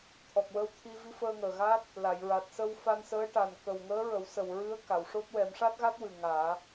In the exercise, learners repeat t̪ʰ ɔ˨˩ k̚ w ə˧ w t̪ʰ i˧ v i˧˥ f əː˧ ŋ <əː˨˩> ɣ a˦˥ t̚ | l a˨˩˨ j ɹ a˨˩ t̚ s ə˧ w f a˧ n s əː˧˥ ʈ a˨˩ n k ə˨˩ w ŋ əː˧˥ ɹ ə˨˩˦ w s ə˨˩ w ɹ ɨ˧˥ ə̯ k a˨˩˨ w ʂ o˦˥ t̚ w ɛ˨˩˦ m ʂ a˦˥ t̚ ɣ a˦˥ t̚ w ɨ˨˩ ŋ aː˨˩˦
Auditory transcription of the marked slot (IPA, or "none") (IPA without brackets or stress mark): əː˨˩